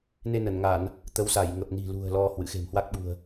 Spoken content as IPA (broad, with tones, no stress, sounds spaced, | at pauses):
n e˧ n ə˧˩ n ŋ a˧˩˨ n | t̪ ə˨˦ w s a˧˩ j ŋ ə˨˩ p̚ n i̤˨˩ l ṳ˨˩ ə̯ l ɔ˧ h w ɨ̰˧˨ x e̤˨˩ m h w a˦˥ k̚ ɓ ṳ˨˩ ə̯